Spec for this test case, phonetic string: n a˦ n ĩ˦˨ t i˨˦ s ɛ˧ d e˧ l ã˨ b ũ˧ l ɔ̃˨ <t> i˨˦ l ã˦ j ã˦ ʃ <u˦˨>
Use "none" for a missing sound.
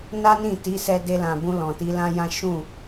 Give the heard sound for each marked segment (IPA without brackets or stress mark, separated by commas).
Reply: t, ũ˦˨